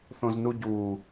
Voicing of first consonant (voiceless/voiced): voiceless